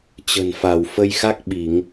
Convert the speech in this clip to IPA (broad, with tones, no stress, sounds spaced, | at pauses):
t͡ɕ ə̤˨˩ n f a˧˩ w f ə˧ j x a˦˥ k̚ ɓ i˧˩˨ ŋ